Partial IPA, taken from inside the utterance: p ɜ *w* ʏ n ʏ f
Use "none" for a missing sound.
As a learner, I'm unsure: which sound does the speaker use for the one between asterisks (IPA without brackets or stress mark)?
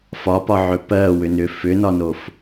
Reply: w